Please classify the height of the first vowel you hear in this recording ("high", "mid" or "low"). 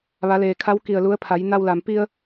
low